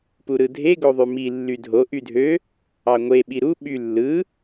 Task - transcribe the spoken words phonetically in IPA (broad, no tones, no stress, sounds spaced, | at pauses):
p u ɾ ɯ dʱ e ɡ o ðˤ y m i lː y dʱ o ʔ y dʱ ø | ɑ ŋʷ e ɓ i ɾ u ɓ y lː ɯ